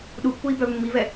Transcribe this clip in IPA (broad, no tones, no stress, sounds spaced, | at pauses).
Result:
ɗ u pː u i̯ b œ v mː i v ɛ